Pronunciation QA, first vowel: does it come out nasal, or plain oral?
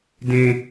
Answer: nasal